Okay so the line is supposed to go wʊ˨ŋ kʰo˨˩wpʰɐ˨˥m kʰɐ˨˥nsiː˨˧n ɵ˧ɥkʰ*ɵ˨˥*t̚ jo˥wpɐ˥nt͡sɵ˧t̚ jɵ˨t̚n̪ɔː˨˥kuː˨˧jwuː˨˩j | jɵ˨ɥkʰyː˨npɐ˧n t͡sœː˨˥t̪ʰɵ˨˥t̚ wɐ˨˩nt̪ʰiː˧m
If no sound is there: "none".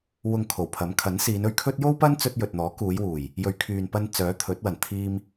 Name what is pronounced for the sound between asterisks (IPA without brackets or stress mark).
ɵ˥